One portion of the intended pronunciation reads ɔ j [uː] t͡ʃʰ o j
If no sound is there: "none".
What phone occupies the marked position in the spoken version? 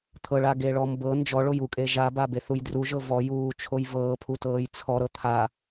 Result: uː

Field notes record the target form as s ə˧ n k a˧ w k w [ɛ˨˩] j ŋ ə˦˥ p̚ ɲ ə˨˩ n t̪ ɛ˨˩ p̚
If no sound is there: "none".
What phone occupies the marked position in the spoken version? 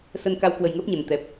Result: ə˨˩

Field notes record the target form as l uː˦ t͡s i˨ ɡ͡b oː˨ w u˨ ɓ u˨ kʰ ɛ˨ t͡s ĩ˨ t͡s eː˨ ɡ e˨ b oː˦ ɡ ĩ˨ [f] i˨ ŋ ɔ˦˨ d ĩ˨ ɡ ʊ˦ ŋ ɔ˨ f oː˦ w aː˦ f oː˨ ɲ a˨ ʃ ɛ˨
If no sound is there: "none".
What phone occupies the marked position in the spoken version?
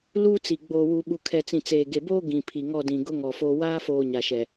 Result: pʰ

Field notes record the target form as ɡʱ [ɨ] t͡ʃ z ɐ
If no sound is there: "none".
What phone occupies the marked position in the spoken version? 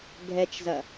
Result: ɛ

